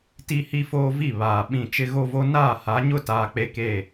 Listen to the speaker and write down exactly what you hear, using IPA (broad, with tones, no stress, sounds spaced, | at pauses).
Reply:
t i˦ h i˦ f oː˦ v i˦˨ β aː˨ ɓ ĩ˨ t͡ʃ ɪ˦ ɣ o˦ v o˦ n aː˦˨ h a˨˦ ɲ ʊ˦ t aː˨ k͡p e˦ k eː˦˨